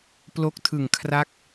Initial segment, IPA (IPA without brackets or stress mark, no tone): p